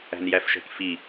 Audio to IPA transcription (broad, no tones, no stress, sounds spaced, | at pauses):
æ̤ n j æ f ʃ ɛ̤ k f i